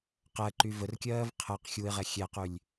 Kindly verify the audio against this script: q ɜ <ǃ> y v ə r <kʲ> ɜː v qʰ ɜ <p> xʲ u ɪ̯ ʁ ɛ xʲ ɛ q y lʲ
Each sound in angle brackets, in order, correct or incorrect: correct, correct, incorrect

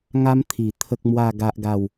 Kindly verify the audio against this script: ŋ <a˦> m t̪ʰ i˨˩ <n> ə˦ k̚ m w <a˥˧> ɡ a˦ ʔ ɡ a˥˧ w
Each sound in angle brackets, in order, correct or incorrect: correct, incorrect, correct

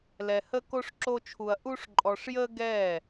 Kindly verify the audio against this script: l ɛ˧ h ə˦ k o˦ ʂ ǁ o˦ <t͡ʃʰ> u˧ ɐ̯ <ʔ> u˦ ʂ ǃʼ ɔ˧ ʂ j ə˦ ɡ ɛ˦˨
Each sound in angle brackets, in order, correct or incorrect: correct, correct

